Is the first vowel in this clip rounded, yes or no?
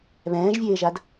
no